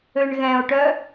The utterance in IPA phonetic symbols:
ø ɳ ɣ ɛ̃ o̯ ʈ œ

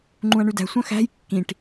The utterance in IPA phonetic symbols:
ŋ͡ǃ ũ ɐ̯ ɳ ʉ d æ̤ sʷ œ̃ x æ̤ j kː ĩ ʈ

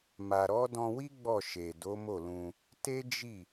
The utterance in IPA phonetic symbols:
m a˨ ɾ ɔ˨˦ d ɔ̃˧ w i˦ ɡ͡b ɔ˦˨ ʃ e˨ d o˨˦ m o˦˨ l ũ˧ | t e˦ d͡ʒ i˦˨

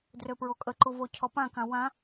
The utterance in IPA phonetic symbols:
d r ø p ɹ o kʼ ə ǃ u v o cʰ ɔ p ã k ã w ã

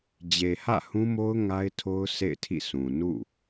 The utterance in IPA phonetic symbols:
d͡ʑ e˨ h ä̰˦˨ h ũ˦ m o˦ ʊ̯ ŋ a˦ ɪ̯ tʰ o˦ ʊ̯ sʰ ḛ˦˨ ɪ̯ tʰ ḭ˦˨ s ũ˨ n ṵ˦˨

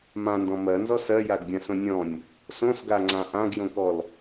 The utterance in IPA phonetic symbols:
m ã n d ɔ̃ m ɜ n z ɔ s ɜ j a ɡ bʲ ã s õ nʲ ɔ̃ nʲ | s õ s ɡ a ŋ͡ǀ ã ʔ ã ɡ j õ k ɔ l

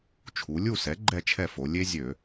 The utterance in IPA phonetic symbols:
t͡ʃʰ u˩˧ lʲ u˥˨ s ɛ˩˥ ɡ͡ǃ ɛ˥˨ t͡ʃʰ ɛ˥˨ f o˩˧ lʲ e˦ zʲ ø˧˩˧

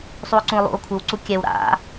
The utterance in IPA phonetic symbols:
sˤ u o̯ ǀ ũ o̯ lˠ ṵ o̯ kʷʰ ɯ w ǀ u kʲ ɛ w ɾ a̰

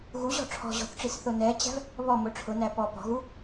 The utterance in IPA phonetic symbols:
ɣ u ʑ ɔ̤ ʈ͡ʂʰ ɔ̤ ʑ ɔ̤ θ ʈ͡ʂ i s θ ʊ n ɛ t͡ɕ æ̤ v | β ɔ m ʊ ʈ͡ʂʰ ʊ n æ p ɔ p ɔ̤ ɣ u

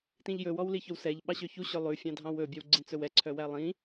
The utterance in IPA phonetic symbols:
t ĩ ʎ j ɵ w ɔ w l i ç ɵ w s ɛ ʎ ɓ ɑ ɕ ø ç u ɕ ɵ lˠ ʉ fʲ ɑ̃ dʱ ɑ̃ w ɵ bʲ ɛ w ɡ͡ǀ ĩ t͡s ɵ w ɛ ǀʰ œ w æ lˠ ĩ

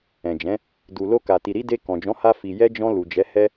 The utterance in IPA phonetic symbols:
ɛ̃˨ d͡ʒ ɛ̃˨˦ | d u˨ l o˧ k a˨ t i˨ ɾ i˨˦ d e˧ k ɔ̃˨ d͡ʒ ɔ̃˨˦ h a˧ f i˨ j ɛ˧ d͡ʒ ɔ̃˧ l u˨ d͡ʒ ɛ˨˦ h ɛ˧

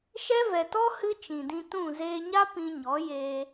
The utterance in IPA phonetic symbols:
ʃ ɛ˦ v ɛ˨ t ɔ˦ h ɨ˦ t͡ʃ ĩ˨ d ĩ˧ t ũ˦˨ z eː˧ ɲ a˦ p ĩ˧ ɲ ɔ˨˦ j eː˧

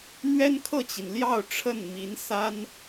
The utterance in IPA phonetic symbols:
n̪ ɥ ɛ˥ n kʰ ɤ˥˩ t͡ɕ i˩ n l j ɑ˥˧ ʊ̯ ʈ͡ʂʰ ə˥˩ n m i˧˥ n s a˥ n

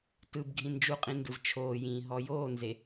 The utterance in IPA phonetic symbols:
t ɯ b ɡʱ ĩ n d͡ʒ u qʼ ĩ n d ɯ v t͡ʃʰ oː j ĩː ɦ ɔ j oː n z e

